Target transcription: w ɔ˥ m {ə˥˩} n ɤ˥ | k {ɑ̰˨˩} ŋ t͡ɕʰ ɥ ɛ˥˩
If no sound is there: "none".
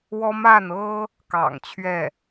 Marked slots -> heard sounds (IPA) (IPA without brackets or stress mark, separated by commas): a˥˩, ɑ̰˨˩